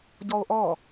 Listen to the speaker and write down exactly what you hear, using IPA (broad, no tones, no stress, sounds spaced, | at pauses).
ɟ ɔ o̯ ʔ ɔ